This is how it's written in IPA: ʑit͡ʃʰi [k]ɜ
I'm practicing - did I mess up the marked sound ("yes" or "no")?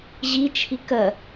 no